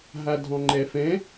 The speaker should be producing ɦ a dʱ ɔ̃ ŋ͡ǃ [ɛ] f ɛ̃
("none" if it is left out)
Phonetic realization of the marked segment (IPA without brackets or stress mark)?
ɛ